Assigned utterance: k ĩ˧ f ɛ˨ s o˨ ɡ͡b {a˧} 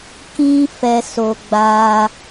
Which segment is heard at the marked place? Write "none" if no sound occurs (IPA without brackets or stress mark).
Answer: a˧